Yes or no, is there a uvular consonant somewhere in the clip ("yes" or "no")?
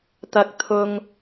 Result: no